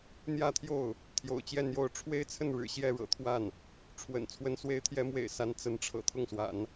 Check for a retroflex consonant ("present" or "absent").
present